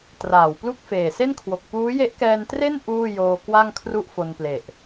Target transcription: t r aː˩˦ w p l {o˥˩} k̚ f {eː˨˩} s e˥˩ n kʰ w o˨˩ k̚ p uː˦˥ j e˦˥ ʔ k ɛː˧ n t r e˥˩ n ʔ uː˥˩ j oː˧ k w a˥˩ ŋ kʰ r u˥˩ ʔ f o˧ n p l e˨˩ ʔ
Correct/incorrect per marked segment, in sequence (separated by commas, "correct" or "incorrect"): incorrect, correct